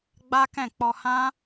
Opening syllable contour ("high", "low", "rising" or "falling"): high